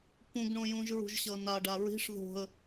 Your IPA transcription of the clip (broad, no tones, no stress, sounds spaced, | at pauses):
p ũ ɡ ɳ õ j ũ ʒ ɹ ṳ ʒ ɕ ʌ n a ɖ a ɹ i̤ ʂ ð o̤ ə̯